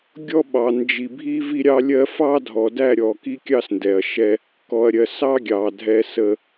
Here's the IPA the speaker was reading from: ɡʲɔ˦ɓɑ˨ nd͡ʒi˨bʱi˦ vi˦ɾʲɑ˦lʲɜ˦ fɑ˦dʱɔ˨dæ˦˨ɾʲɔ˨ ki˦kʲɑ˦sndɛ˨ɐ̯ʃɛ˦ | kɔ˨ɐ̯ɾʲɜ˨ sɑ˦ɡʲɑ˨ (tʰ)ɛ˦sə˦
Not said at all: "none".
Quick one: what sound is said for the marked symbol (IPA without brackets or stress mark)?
dʱ